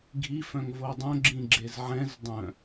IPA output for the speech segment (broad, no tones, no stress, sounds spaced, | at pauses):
ɡʱ i f œ̃ ŋ v o dˤ œ̃ ɡ͡ǁ ĩ ɡ͡ǁ e z ʕ ɛ̃ z dˤ œ̃